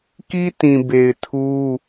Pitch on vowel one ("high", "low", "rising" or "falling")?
high